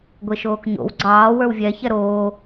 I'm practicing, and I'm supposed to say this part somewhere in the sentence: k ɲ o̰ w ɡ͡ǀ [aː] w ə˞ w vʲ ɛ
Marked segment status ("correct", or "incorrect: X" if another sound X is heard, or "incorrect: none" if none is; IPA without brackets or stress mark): incorrect: ɑː